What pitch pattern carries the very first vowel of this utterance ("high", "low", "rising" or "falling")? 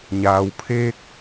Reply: low